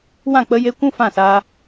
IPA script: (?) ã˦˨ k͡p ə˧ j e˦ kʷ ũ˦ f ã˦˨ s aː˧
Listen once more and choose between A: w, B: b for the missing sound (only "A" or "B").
A